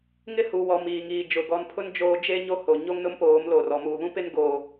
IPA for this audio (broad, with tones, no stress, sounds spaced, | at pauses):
ŋ ɪ˦ h u˨ w ɔ˨ m iː˨ ŋ iː˨ d͡ʒ ʊ˨ ɡ ɔ˨ n pʰ ʊ˦ n d͡ʒ oː˦ d͡ʒ e˦ ɲ o˦ h o˨ ɲ o˦ ŋ n ʊ˦ m p oː˨˦ m l o˨ r ɔ˨ m uː˨ β ũ˦ p ɪ˦ n ɡ oː˦